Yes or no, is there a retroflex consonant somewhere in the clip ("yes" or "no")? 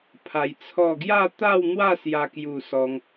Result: no